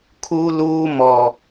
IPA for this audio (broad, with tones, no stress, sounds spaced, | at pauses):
kʰ uː˦ l uː˦ m ɔ˨